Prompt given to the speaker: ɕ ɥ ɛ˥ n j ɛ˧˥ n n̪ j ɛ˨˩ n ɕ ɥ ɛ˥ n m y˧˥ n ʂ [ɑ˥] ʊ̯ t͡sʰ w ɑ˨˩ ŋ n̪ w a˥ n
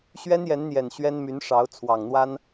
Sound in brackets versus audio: incorrect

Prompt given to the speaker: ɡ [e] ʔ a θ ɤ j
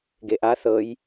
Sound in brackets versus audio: correct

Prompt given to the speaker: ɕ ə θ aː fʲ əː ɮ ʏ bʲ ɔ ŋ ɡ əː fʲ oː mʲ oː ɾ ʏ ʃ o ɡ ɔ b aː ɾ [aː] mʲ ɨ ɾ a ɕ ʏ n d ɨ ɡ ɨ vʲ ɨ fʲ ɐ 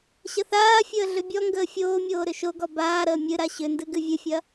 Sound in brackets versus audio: incorrect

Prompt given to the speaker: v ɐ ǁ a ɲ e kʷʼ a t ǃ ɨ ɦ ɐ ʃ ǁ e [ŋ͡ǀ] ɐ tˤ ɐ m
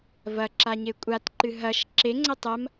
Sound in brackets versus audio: correct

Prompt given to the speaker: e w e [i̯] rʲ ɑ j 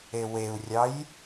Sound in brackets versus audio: incorrect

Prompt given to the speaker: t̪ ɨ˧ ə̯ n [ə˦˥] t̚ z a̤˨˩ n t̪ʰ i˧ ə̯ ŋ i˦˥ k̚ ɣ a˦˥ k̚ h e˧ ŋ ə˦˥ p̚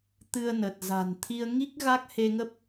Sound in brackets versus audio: incorrect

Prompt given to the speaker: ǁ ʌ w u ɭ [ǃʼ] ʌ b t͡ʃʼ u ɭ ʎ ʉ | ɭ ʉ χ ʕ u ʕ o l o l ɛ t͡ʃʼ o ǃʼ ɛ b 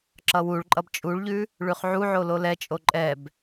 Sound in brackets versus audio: correct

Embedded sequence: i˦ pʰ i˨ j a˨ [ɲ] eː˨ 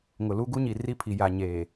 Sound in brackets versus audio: correct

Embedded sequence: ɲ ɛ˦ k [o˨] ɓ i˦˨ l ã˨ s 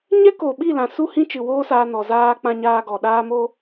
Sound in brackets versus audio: correct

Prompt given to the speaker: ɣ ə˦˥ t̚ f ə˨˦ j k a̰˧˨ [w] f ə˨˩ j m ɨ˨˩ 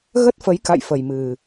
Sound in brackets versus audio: incorrect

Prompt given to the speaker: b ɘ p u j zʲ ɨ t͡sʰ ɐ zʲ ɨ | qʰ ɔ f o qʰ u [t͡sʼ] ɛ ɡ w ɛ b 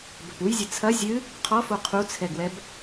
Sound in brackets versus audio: incorrect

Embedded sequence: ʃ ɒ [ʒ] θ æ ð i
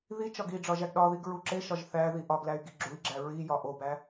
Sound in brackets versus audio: correct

